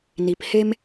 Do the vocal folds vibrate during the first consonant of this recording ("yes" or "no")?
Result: yes